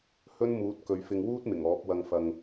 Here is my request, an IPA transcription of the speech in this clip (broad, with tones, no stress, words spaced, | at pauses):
hɵ˥nmuː˨˥t̚ kɵ˨˧ɥfɪ˧ŋ wuː˥t̚ mɪ˨˩ŋɔː˨˥p̚wɐ˧ŋ fɐ˨ŋ